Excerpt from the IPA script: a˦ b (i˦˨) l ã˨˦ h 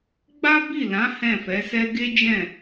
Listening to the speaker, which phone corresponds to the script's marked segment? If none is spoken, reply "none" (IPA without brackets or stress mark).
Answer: i˦˨